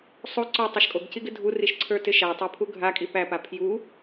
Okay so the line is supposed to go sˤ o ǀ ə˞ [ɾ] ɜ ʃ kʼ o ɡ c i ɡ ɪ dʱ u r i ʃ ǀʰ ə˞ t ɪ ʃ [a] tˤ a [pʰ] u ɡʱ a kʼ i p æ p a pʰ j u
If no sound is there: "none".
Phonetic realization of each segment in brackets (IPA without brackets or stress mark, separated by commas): tˤ, æ, pʰ